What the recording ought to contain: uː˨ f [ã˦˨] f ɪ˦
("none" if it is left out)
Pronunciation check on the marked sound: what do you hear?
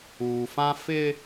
ã˦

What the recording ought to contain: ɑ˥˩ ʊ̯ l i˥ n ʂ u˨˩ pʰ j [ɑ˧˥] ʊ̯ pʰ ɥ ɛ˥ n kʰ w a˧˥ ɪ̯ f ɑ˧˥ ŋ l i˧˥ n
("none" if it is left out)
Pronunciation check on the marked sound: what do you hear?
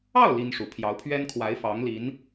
ɑ˧˥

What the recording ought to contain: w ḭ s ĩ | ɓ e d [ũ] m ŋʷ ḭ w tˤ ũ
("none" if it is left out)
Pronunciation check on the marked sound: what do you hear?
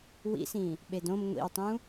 õ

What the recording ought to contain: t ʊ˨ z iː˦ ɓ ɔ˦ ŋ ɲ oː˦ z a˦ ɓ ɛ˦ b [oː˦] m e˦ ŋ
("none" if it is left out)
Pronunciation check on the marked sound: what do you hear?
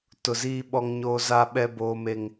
oː˦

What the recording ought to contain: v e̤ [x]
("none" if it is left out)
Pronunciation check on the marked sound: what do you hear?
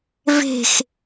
x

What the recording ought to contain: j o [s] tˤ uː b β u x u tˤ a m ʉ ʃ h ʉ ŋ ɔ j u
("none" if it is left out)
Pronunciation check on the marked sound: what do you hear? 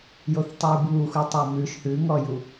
θ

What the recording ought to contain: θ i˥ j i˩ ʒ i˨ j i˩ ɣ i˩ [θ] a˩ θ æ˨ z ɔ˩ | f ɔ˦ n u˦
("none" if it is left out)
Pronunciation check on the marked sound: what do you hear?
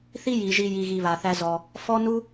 β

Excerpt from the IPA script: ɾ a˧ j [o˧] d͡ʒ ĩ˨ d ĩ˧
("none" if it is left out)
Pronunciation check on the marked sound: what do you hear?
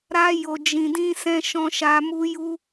o˨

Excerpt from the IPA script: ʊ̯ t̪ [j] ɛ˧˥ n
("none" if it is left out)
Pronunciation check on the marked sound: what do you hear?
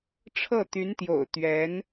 ɥ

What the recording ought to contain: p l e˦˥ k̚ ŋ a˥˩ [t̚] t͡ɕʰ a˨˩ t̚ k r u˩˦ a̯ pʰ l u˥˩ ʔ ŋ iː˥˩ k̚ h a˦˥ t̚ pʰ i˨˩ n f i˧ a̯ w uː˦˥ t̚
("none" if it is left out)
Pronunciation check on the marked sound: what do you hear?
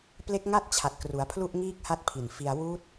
t̚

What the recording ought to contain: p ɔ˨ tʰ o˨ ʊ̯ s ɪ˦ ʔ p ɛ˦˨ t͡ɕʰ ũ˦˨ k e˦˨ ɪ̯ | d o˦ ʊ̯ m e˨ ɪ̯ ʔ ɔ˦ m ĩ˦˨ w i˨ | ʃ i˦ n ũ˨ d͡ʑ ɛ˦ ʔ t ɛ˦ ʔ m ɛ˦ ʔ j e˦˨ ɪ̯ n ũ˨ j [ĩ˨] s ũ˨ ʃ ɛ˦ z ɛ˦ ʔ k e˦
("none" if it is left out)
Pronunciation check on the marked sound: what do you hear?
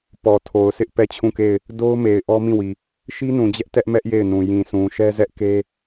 ĩ˨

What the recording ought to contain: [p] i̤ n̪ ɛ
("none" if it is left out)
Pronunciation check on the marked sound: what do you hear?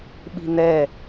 ɓ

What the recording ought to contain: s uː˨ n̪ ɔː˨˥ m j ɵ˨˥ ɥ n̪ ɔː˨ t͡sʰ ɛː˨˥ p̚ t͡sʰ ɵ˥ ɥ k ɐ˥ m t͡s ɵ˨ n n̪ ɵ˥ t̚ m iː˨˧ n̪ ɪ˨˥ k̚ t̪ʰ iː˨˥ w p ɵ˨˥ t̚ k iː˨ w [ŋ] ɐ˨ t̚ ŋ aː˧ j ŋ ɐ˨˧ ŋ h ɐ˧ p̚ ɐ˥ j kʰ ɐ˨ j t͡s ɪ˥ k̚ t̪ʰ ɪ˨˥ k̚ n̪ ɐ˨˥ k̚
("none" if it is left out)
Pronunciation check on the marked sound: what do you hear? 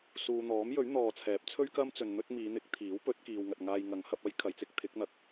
ŋ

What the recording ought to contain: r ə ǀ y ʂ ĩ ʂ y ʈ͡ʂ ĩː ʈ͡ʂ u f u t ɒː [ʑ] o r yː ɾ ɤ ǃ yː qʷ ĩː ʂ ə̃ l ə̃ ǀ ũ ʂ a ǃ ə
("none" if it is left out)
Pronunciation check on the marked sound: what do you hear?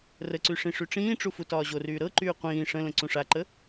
ʑ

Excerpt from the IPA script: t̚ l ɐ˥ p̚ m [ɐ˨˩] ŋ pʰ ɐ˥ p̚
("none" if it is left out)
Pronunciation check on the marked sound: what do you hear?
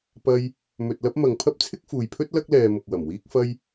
ɐ˨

